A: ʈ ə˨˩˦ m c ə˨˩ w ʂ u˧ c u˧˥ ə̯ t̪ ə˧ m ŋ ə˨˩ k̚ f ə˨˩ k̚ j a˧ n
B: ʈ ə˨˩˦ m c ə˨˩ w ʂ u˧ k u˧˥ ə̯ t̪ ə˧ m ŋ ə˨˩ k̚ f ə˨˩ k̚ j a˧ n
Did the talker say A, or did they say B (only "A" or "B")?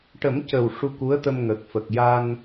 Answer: B